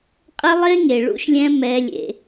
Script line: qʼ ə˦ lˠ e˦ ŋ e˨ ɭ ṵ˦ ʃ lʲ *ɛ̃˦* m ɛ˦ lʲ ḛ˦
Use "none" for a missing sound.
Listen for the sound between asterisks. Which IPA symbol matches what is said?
ɛ̃˦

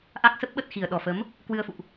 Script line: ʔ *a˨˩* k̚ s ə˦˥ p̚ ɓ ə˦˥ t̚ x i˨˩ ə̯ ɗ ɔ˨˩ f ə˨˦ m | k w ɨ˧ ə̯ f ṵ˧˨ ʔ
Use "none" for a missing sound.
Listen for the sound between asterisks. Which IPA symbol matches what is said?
a˦˥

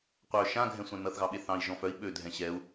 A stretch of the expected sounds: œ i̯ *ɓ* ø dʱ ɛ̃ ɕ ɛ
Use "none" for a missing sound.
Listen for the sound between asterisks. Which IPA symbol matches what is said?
ɓ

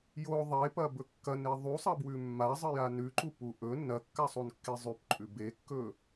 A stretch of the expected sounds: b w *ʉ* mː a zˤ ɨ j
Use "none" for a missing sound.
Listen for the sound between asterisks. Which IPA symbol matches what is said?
ʉ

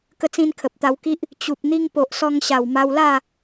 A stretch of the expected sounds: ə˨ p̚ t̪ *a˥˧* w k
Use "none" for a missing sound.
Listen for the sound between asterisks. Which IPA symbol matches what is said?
a˧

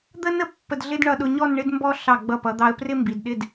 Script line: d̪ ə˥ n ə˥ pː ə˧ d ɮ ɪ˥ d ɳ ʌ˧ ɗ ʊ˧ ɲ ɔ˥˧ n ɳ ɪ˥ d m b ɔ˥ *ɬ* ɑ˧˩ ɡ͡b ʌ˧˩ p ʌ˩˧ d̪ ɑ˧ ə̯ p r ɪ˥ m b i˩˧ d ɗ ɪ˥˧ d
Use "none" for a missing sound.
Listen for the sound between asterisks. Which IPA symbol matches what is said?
ɬ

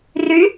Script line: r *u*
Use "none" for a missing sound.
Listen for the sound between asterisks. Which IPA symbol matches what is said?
y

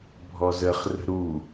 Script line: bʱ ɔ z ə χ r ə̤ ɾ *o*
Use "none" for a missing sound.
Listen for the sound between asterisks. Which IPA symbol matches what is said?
u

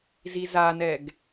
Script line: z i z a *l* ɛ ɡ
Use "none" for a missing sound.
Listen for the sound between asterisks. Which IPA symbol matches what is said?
n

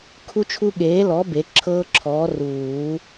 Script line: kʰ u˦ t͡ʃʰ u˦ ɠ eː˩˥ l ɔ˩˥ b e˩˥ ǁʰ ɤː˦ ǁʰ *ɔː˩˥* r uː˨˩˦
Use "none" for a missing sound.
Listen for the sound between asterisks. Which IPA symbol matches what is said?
ɔː˩˥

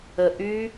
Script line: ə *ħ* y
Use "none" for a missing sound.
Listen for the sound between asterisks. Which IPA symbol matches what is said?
ʔ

